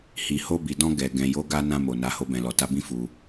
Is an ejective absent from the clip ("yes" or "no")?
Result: yes